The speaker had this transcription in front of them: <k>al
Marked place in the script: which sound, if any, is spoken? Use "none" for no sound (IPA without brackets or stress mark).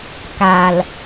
k